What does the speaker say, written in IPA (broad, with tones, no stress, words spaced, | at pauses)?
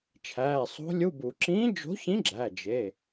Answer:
t͡ʃʰæː˩˧˩sˤo̤˧˥lʲu˧˥˧bu˨˩˦ ǁĩː˧˥d͡ʒo̤˧˥çĩ˧˥ ɡ͡ǁæ˩˧˩d͡ʒe˩˧˩